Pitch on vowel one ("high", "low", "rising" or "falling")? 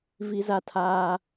high